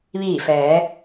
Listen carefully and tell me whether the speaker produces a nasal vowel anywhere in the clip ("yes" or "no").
no